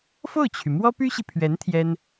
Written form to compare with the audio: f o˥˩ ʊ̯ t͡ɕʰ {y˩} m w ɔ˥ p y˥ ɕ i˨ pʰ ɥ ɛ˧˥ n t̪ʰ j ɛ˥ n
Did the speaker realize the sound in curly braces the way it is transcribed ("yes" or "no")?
yes